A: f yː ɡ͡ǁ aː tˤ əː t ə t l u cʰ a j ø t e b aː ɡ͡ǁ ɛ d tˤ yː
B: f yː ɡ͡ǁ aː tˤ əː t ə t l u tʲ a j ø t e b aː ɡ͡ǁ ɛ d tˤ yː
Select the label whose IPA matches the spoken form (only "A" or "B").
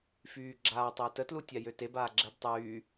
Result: B